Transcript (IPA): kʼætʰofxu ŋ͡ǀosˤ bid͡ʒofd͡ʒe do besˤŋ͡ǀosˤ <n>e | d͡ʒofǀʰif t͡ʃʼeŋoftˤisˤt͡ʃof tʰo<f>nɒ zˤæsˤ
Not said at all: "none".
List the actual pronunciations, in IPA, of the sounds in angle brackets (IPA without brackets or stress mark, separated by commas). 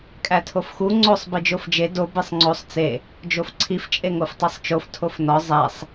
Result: t͡s, f